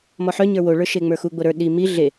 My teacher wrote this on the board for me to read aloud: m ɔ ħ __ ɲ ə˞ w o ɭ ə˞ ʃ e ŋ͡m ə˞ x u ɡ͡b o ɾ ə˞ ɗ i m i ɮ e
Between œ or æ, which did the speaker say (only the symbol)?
œ